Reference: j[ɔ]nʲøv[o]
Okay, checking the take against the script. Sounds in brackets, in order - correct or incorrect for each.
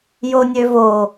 incorrect: o, correct

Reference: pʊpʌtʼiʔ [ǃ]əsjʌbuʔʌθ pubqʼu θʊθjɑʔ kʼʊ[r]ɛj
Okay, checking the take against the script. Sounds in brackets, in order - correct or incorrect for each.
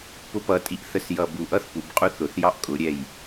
incorrect: θ, incorrect: ɾʲ

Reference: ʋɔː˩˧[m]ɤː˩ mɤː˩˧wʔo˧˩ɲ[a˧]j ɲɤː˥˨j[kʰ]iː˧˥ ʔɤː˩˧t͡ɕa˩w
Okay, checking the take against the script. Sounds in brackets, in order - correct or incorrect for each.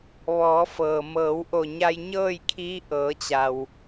incorrect: f, correct, correct

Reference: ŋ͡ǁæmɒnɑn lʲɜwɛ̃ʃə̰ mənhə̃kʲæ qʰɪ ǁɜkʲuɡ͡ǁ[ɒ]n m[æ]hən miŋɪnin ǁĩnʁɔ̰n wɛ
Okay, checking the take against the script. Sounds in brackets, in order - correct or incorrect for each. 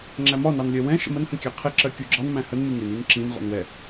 incorrect: ɑ, incorrect: æ̃

